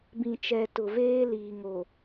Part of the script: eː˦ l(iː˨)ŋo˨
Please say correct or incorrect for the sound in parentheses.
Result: correct